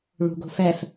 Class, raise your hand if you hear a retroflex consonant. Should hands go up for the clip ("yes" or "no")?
yes